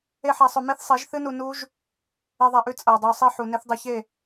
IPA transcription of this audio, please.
e˦ħa˧sˤɵ˧ me˦θsˤe˨˦ʒθɨ˦nu˧ nu˦ʒ | e˧ðˤa˧ʔʉ˧ t͡sʼɐ˨o̯dˤɨ˨o̯sˤe˦ ħu˨ne˦θdˤɨ˧ çe˦˨

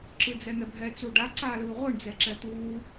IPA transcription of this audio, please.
ǁɯd͡zɛn̪ɛbʱɛ t͡suɖa ǀaːlɯːʁʷɯɳ d͡zɛǁɛt̪uː

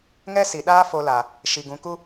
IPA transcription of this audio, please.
ŋɛ˦ si˨ɗaː˦ fo˧la˨ | ʃi˨ ɡũ˨˦ku˦

